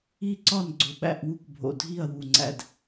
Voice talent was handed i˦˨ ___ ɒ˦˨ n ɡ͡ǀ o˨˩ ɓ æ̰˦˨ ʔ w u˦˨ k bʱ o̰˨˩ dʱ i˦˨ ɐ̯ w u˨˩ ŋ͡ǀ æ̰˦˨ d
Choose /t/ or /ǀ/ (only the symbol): ǀ